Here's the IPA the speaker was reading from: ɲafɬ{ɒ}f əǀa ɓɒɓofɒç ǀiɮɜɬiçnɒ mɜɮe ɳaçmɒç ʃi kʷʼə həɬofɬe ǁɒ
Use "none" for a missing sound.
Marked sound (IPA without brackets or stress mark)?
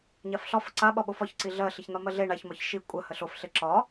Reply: ɒ